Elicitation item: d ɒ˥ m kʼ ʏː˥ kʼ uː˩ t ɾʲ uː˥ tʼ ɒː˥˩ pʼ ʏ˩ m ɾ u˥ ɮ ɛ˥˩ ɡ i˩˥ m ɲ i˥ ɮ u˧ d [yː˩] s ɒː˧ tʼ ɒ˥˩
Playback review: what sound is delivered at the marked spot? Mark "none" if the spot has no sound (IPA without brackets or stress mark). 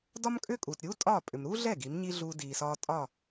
iː˩